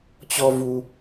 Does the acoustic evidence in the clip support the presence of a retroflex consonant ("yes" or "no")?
no